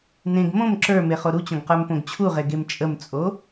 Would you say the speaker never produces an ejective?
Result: no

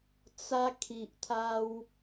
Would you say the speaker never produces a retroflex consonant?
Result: yes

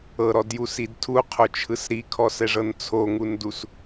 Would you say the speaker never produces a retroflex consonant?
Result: no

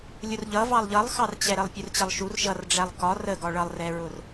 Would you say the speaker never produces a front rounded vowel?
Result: yes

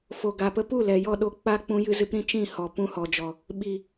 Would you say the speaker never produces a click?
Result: yes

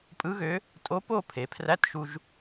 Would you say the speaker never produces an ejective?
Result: no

